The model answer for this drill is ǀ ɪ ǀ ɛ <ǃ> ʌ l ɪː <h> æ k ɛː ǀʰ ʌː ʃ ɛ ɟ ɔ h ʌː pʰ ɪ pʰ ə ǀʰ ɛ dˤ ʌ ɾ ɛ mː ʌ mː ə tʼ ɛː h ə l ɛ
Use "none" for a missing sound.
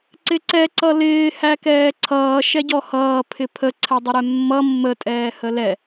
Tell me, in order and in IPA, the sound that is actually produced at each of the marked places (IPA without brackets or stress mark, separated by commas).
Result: ǀ, h